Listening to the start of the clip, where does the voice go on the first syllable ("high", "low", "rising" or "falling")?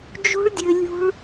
high